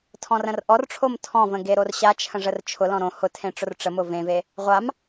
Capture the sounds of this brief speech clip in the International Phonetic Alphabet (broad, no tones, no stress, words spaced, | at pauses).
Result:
tʰɔ̃rə̃rʔɔrʈ͡ʂʰom tʰɔ̃və̃ ɡeɾorɕat͡ʃʰə̃ ʐərt͡ʃʰʊlɔ̃ ɾõ hʊ tʰẽʈ͡ʂʊrʈ͡ʂəmʊ vẽve | ʁʷam